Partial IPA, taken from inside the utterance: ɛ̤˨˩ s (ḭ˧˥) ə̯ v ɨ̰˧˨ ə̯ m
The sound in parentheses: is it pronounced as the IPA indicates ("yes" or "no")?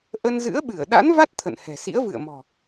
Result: yes